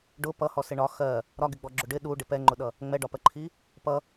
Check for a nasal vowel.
absent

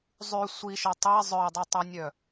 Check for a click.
absent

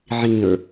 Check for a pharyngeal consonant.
present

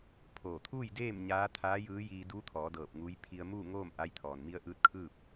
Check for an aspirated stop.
present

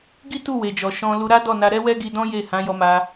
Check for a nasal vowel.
present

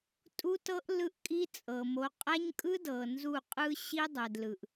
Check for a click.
absent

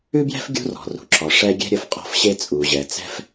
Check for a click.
present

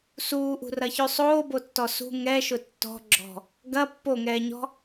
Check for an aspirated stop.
absent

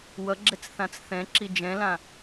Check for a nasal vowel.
present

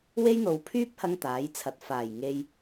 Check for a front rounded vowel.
present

